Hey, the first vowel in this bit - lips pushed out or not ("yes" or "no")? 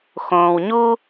yes